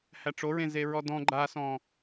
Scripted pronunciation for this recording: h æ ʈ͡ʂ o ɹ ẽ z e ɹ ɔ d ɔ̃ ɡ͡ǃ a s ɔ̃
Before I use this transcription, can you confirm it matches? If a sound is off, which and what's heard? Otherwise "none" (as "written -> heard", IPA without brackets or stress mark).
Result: none